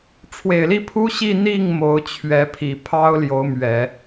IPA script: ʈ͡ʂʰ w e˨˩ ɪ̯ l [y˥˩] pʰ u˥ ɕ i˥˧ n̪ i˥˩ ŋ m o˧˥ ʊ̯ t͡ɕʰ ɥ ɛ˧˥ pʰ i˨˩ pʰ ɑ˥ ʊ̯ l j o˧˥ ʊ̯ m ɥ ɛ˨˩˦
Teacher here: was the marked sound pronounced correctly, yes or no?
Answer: no